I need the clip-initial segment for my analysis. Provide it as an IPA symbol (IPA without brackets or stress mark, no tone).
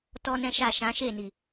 t